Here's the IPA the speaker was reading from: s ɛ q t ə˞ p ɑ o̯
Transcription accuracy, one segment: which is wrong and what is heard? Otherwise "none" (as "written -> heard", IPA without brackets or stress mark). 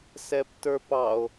q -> p